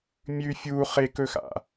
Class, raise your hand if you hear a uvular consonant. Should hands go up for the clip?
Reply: yes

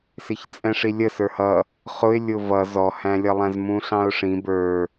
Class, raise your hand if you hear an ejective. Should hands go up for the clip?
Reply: yes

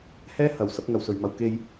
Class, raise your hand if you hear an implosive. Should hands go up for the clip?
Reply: no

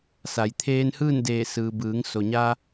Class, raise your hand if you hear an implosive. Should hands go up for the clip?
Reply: no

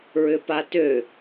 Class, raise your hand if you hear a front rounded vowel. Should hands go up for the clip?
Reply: yes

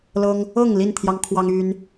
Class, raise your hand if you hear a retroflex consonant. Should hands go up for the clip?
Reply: no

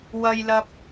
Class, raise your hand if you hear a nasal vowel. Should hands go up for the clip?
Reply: no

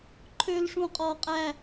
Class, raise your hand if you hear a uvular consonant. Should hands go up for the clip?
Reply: yes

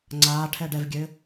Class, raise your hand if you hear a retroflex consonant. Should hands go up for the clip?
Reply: yes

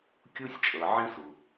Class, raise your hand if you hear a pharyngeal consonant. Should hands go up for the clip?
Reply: yes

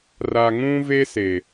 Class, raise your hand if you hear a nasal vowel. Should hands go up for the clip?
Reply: yes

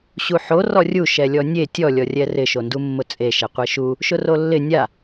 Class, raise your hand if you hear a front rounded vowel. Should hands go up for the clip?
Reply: no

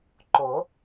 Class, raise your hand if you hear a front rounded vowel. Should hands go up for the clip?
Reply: no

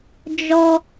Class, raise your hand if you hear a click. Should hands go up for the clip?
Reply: no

